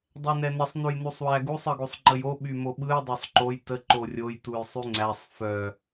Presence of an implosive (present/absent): present